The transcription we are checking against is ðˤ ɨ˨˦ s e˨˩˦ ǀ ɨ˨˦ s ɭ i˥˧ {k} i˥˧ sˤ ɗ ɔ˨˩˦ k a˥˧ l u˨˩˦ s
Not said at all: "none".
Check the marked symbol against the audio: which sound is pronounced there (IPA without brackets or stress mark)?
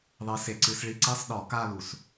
ǀ